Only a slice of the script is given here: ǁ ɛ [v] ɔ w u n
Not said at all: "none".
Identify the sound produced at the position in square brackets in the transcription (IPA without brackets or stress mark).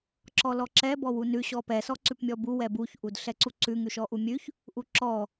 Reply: b